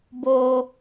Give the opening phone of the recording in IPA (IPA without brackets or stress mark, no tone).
b